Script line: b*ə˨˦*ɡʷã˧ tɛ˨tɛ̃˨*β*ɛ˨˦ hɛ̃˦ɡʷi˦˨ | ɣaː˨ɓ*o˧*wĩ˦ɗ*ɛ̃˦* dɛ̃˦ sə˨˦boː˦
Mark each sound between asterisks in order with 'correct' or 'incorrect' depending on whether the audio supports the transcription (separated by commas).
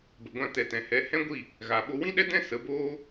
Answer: incorrect, incorrect, correct, incorrect